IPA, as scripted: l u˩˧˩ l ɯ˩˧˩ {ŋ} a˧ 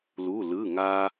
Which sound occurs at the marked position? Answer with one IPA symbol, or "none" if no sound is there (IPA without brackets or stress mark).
ŋ